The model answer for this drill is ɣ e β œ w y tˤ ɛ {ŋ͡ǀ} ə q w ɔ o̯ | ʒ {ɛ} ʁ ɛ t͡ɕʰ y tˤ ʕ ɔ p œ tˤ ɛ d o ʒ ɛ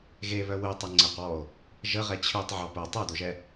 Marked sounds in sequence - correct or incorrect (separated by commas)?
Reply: correct, incorrect